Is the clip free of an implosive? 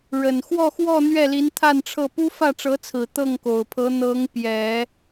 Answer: yes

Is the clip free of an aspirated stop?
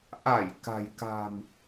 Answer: yes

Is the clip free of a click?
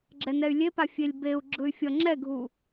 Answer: no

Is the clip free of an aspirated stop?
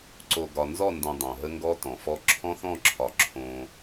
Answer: no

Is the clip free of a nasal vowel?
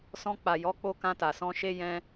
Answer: no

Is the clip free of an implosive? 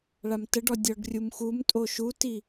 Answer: yes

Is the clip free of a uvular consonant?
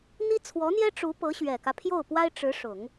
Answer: yes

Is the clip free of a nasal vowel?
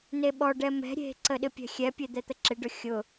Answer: yes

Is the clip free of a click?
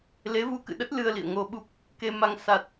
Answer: yes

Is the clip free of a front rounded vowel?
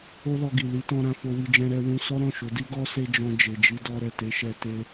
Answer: yes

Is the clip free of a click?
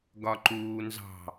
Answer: no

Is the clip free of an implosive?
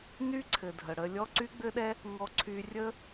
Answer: no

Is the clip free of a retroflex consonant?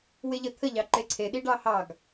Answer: no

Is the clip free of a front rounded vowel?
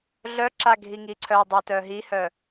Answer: no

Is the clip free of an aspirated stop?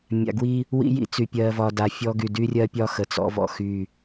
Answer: yes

